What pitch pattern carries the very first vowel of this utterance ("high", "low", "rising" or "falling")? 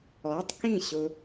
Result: rising